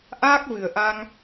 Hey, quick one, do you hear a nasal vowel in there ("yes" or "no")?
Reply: no